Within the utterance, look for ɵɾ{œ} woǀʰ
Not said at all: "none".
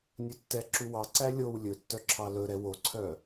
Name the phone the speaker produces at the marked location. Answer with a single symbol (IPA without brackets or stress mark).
ɛ